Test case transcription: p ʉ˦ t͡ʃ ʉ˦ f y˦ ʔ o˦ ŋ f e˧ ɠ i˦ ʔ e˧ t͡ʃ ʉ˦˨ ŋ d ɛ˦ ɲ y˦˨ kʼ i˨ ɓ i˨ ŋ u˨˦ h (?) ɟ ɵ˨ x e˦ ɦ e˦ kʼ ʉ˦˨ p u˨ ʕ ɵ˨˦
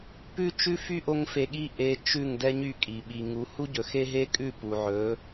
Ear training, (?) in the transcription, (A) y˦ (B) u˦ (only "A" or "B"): B